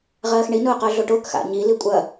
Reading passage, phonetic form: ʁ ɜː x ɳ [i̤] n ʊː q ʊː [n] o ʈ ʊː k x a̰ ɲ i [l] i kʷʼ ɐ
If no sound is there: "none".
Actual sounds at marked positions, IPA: i, ɮ, l

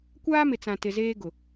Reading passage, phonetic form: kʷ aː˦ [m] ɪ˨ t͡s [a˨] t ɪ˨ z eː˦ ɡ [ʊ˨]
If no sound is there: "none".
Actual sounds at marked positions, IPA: m, ã˨, ʊ˨

